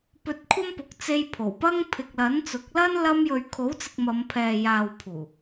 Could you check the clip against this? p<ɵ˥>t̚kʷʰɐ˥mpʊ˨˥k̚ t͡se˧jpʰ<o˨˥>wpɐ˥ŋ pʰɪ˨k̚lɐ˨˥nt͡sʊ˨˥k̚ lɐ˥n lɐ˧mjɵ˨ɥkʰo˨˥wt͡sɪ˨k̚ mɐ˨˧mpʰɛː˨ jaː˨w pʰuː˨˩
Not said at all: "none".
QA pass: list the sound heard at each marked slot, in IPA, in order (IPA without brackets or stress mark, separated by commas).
ɵ˧, o˨˩